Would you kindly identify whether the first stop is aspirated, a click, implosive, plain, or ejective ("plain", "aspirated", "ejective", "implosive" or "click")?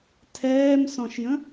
aspirated